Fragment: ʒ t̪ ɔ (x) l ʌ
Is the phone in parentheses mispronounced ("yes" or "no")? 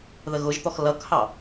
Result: no